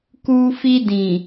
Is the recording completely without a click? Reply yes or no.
yes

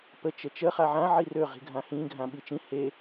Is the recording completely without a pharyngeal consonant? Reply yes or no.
no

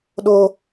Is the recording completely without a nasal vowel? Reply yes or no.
yes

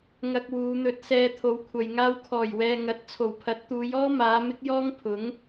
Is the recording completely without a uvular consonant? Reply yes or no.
yes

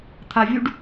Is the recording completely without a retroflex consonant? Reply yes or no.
no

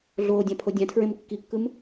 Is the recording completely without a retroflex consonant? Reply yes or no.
yes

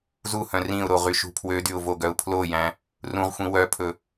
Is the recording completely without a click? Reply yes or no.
yes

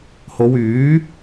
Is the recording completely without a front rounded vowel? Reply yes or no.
no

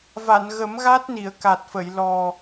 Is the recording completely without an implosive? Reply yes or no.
yes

